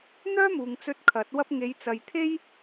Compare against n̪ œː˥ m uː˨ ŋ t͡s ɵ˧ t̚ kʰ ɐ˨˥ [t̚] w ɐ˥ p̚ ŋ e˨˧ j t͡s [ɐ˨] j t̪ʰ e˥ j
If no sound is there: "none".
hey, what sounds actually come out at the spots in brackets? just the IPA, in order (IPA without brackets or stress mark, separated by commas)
t̚, ɐ˨